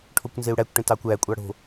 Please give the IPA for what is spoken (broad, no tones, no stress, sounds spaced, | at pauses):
ʈʰ o kʷ n z e u̯ ɽ æ kʷ ʈ ẽ t ɑ kʷ æ kʷʼ ɑ ɽ o̤